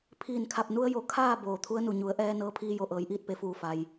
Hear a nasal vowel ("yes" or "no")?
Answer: no